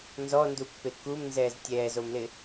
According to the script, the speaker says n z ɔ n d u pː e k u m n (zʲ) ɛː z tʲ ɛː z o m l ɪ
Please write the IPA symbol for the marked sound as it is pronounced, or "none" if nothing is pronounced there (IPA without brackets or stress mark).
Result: z